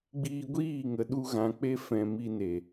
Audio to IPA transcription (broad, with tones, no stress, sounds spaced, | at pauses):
ɡ͡b iː˧ ɡʷ iː˦˨ ŋ ə˨ ɗ u˧ ɣ ã˨ k͡p e˧ f ɛ̃˨ m i˧ n e˨